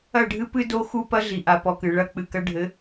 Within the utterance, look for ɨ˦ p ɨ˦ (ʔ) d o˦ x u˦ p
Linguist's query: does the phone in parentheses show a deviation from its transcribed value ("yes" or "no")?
yes